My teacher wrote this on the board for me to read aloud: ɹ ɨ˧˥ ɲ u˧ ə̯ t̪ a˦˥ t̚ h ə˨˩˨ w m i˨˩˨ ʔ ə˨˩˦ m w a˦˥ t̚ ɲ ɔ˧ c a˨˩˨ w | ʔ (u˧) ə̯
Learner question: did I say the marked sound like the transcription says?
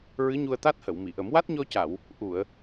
no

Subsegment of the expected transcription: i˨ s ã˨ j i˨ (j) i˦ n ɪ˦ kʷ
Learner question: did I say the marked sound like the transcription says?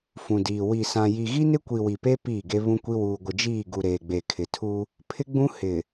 no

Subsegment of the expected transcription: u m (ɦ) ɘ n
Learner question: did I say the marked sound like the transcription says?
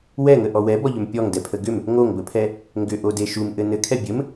no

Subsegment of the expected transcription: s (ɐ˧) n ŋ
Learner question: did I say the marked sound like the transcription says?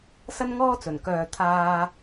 no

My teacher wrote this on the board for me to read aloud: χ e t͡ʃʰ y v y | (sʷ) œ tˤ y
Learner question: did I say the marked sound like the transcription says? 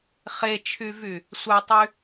yes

